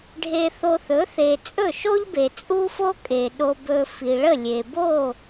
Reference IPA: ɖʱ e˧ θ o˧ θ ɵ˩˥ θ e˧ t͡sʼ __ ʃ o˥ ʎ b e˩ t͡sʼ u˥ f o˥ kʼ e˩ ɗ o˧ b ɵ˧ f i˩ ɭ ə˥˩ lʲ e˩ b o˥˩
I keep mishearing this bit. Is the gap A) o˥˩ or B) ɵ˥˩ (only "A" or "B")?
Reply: B